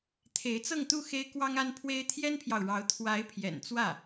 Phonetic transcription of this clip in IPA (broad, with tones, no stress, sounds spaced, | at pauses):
t̪ʰ e˧˥ ɪ̯ t͡s ɤ˥˧ ŋ t̪ u˥˩ x e˥ ɪ̯ k w ɑ˥ ŋ a˥ n pʰ w e˥ ɪ̯ t̪ʰ j ɛ˥ n pʰ j ɑ˨ ʊ̯ ɻ ɑ˧˥ ʊ̯ t̪ʰ w a˧˥ ɪ̯ pʰ j ɛ̰˨˩ n t͡s w ä˥˩